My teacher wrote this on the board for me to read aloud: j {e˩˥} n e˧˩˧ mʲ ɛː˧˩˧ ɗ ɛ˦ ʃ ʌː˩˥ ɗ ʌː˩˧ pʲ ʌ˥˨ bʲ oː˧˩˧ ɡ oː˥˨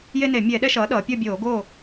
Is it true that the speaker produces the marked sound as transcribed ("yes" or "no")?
no